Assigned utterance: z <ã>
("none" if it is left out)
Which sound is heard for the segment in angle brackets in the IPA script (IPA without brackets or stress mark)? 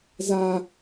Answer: a